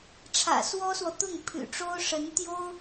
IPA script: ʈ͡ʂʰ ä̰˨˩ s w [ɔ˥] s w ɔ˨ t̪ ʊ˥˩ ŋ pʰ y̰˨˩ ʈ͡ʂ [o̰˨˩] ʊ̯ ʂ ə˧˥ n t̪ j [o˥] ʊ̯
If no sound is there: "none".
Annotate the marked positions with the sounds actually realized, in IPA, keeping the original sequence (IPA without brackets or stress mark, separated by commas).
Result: ɔ˥, o˥, o˥